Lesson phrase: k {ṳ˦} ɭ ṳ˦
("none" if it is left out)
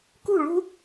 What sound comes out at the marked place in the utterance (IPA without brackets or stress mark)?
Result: ṳ˦˨